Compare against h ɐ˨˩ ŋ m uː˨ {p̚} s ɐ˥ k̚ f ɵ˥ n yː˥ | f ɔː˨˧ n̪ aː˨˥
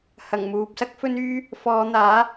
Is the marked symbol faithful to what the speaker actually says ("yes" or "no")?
yes